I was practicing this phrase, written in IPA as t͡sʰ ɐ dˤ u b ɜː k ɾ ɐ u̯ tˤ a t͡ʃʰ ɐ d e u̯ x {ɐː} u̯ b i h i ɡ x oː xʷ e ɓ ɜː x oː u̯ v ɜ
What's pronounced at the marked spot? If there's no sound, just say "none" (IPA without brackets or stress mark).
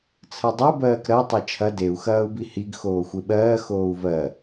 ɐː